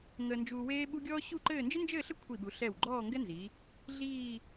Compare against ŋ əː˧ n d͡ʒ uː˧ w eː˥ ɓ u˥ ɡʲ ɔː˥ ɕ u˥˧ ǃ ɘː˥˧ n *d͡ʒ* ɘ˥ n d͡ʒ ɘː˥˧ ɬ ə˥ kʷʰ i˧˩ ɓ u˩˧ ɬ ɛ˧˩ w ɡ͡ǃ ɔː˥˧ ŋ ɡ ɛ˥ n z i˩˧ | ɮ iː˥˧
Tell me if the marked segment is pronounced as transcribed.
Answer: yes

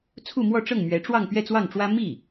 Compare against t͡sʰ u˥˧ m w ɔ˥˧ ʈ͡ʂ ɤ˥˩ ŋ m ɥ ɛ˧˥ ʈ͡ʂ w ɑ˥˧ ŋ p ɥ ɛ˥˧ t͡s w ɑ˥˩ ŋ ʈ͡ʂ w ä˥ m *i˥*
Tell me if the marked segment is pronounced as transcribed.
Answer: no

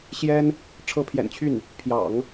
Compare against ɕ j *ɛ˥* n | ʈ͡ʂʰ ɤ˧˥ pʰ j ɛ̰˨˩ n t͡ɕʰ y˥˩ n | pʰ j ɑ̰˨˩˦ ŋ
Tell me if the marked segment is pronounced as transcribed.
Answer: yes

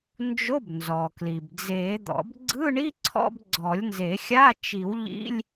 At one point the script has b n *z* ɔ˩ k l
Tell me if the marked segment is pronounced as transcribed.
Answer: yes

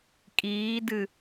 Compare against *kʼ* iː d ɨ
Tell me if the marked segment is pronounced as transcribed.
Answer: yes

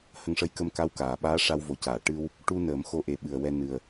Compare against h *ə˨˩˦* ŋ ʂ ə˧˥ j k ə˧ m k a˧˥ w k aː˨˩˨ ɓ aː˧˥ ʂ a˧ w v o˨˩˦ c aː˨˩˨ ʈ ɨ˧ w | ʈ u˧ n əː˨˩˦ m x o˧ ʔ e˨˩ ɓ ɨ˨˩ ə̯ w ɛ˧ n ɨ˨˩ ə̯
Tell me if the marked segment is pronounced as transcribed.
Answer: no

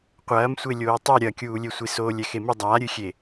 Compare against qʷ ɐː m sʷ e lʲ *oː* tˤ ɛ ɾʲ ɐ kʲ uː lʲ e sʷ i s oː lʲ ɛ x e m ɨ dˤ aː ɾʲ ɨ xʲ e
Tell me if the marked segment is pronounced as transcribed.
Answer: yes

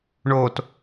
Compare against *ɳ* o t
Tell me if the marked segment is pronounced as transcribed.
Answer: yes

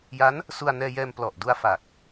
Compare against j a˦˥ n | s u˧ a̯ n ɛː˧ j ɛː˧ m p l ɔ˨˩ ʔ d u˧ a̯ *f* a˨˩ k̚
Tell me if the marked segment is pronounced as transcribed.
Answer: yes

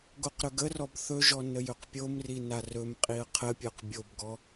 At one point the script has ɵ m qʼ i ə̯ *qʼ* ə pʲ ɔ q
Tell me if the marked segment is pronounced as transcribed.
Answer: no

